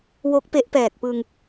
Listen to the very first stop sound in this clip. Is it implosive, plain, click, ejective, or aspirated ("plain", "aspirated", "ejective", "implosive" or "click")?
plain